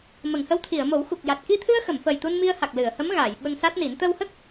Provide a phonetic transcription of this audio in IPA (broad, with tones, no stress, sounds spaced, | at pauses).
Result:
m ə˨˩˨ ŋ h ə˧˥ w t̪ʰ i˨˩˨ ə̯ m o˨˩˦ w x u˨˩ k̚ j a˨˩ t̚ k i˧ t̪ʰ ɨ˧ ə̯ x ə˨˩˨ m f əː˨˩ j t̪ u˧ n m i˧ ə̯ h a˨˩ k̚ l ɨ˨˩˨ ə̯ h ə˧˥ m ɣ aː˨˩˨ j ɓ ə˧ ŋ s a˦˥ t̚ n i˨˩˦ n t̪ ə˧ w h ə˦˥ k̚